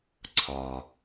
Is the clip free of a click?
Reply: no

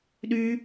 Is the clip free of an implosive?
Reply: no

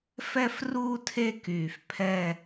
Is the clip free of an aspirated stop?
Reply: no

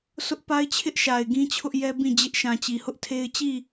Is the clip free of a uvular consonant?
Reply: yes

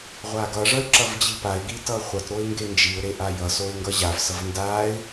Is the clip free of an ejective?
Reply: yes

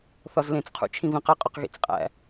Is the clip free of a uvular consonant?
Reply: no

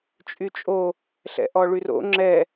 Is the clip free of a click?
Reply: no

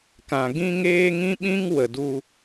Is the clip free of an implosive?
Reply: no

